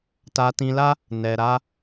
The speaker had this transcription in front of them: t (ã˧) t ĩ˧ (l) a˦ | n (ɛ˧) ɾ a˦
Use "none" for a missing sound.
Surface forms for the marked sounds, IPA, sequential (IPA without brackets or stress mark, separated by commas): a˧, l, ɛ˧